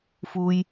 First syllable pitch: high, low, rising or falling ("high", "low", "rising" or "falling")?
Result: low